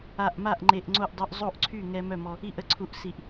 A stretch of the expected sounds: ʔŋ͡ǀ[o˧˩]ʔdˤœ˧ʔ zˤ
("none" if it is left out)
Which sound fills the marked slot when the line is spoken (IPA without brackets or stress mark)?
o˥˩